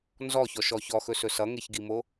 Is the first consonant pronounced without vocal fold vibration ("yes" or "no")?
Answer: no